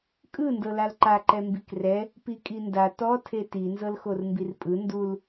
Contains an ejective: yes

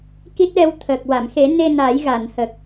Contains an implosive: yes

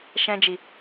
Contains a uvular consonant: no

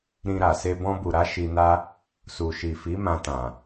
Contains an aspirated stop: no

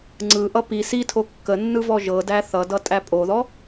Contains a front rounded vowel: no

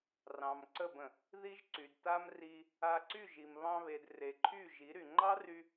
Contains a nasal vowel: yes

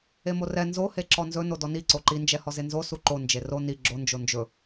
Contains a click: yes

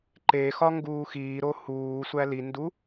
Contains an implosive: no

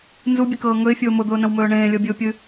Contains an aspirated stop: no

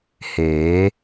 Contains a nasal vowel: no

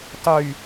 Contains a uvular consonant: no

